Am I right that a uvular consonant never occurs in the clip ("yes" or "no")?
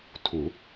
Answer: yes